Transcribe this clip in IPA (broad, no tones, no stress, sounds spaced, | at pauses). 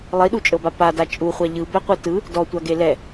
lˠ i ɗ u t͡ʃʼ ɤ b a p a d a t͡ʃʼ u χʷ a ʎ ɯ b ɛ qʷ ɯ t ɯ | d ɔ tʷ a ɡ e l ɛ